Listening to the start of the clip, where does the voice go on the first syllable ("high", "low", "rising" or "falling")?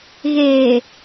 low